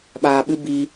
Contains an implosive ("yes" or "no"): yes